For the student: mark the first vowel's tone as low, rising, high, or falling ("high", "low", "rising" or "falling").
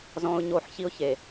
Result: low